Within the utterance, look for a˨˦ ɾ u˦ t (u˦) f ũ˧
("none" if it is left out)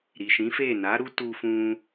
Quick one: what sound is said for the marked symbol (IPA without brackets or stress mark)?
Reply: u˧